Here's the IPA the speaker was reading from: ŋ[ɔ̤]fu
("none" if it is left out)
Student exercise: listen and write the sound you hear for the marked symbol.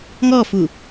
ɔ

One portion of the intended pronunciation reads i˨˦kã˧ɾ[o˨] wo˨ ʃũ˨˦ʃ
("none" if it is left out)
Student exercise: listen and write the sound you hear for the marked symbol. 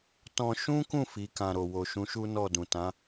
o˨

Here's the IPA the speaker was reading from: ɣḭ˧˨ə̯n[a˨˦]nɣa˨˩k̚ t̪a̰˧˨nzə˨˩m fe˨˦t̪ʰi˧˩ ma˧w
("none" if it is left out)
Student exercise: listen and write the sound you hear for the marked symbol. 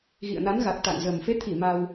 a˨˦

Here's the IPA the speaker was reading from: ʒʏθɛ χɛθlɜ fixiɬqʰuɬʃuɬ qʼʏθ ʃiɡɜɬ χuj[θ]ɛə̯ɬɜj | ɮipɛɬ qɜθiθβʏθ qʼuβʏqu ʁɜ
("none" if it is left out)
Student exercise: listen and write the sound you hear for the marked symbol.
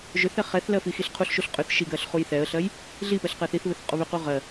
θ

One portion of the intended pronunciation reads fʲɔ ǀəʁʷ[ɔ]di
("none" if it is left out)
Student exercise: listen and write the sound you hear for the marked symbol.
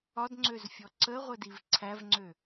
ə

